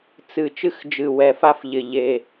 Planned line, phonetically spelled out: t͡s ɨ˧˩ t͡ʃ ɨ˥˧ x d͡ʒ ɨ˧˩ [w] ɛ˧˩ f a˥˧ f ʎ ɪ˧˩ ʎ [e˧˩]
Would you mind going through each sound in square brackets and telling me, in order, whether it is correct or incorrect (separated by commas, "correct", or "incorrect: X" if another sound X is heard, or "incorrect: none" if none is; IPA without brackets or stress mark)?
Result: correct, correct